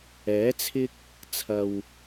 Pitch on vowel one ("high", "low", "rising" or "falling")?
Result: rising